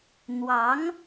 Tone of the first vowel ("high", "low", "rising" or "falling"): rising